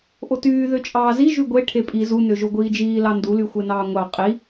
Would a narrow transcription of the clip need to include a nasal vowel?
no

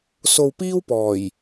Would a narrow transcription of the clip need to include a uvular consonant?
no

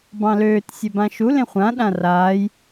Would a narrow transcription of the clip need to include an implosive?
yes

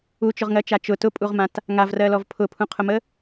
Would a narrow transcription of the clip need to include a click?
no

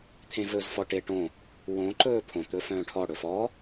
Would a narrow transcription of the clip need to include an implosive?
no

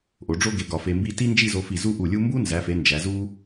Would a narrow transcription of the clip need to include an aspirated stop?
no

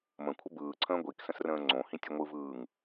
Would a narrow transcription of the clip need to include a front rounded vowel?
no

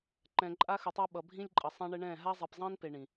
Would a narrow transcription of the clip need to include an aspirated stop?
no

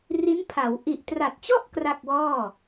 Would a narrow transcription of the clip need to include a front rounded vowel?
no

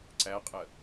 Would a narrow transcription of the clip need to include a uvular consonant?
yes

